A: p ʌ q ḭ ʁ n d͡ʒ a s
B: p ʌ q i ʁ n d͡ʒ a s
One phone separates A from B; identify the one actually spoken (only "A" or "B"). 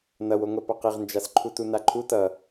B